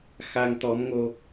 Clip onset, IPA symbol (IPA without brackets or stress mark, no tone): x